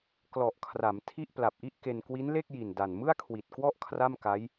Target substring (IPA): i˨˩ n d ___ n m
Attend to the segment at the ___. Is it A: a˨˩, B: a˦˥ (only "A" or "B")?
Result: A